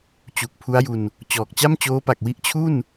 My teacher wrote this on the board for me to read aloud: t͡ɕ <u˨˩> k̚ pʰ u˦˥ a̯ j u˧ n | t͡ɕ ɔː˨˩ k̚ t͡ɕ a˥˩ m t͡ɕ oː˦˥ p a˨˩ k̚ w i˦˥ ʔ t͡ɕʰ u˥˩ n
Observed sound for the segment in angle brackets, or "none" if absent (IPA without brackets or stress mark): u˨˩